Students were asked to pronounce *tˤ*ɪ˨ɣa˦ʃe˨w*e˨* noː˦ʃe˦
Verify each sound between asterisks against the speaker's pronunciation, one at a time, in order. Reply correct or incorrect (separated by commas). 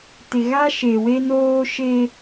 incorrect, incorrect